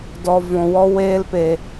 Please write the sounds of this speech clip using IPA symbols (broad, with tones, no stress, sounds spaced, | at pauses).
d ɔ˨ v ɔ̃˨ w ɔ˧ w eː˧ l p e˨